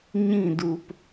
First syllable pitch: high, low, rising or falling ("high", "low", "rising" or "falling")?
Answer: falling